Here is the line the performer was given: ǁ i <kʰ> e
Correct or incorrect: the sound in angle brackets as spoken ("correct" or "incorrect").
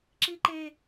incorrect